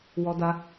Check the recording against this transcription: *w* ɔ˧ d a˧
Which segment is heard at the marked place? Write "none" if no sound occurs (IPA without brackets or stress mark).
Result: w